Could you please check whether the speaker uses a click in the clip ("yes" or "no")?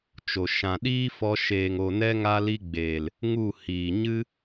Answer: no